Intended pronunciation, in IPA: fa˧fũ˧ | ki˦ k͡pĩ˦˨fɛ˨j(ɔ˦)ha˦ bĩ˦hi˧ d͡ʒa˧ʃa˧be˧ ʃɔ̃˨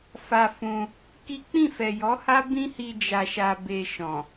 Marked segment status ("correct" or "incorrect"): incorrect